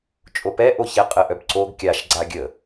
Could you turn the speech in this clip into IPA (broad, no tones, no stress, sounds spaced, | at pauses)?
t͡ʃʼ o p ɛ ʔ o ç ɛ qʼ ə ʔ œ b ǀ o ɡ kʲ a ʃ ɡ͡ǀ a ɡʲ ə